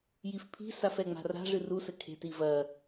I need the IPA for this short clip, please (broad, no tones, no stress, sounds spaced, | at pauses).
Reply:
j i f pʰ i̤ s a f ɛ ŋ͡m a̤ r a̤ ʐ ɨ r u s ɘ kʰ e̤ t i v ɐ